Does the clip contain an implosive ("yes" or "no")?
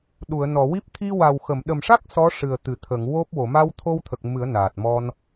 yes